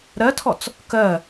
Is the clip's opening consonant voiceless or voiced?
voiced